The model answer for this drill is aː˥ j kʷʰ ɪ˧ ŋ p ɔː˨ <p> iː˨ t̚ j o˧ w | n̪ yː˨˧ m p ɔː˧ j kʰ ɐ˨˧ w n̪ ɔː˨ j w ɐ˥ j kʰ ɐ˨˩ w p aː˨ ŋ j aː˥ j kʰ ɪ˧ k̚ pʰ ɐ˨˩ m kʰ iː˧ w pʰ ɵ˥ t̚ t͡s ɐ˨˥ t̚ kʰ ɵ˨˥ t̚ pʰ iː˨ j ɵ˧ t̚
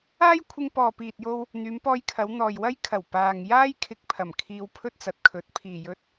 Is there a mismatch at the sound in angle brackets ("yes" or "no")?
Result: no